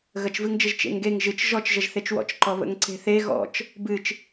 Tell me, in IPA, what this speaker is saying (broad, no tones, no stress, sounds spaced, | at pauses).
ɣ ə t͡ʃ v ɨ ŋ d͡ʒ ə ʒ t͡ʃ ḛ ŋ ɡ e ŋ ʒ ɨ t͡ʃ ʒ ɔ t͡ʃ ʒ ə ʒ θ e t͡ʃ w ɔ̰ t͡ʃ ǃ ɔ β ə̰ ŋ ǀ e̤ θ e ɣ ɔ̰ t͡ʃ | b ɨ t͡ʃ